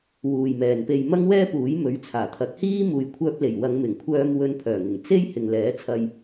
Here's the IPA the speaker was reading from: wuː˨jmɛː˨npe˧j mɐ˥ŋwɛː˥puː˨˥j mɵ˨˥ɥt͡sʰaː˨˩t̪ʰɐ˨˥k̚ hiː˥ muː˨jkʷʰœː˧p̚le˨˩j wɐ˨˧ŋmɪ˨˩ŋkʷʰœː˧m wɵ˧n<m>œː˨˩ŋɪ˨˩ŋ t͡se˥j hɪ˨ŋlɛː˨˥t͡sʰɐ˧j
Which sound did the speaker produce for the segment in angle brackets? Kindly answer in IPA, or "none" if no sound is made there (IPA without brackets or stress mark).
pʰ